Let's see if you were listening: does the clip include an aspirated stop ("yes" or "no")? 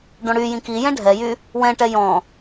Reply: no